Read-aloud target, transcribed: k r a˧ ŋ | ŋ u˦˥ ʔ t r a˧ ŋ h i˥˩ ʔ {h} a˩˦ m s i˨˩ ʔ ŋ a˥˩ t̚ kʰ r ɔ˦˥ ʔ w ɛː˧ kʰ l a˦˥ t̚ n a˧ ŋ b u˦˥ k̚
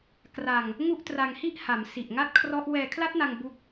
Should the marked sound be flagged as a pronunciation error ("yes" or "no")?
no